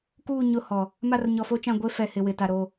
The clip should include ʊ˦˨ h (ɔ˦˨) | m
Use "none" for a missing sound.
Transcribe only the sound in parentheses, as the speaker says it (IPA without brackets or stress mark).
ɔ˨